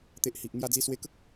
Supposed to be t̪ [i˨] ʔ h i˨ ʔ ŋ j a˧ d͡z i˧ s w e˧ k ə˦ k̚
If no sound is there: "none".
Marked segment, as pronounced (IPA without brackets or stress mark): e˨